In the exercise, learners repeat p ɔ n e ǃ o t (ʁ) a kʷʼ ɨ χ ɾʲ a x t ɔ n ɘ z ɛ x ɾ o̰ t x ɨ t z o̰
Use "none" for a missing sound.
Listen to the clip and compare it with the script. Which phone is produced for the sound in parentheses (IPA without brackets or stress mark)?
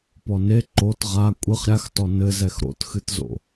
ʁ